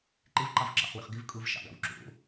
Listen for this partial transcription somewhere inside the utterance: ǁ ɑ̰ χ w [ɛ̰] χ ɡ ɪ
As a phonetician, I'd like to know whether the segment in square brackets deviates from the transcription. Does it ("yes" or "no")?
yes